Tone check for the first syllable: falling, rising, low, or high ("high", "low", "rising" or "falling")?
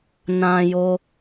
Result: high